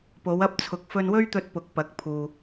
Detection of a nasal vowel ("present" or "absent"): absent